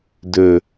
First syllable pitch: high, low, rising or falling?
low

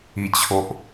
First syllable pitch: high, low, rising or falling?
low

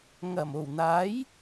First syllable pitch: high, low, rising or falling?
low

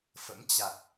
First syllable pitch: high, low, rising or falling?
rising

